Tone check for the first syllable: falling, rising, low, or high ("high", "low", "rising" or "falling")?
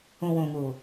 low